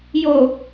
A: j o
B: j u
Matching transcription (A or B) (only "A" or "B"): A